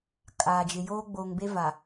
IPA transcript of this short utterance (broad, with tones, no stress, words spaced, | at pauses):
kʼaː˨d͡ʒɪ˨ joː˦ ɡ͡boː˨ŋbe˦ va˨